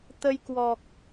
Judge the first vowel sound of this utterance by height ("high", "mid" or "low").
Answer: mid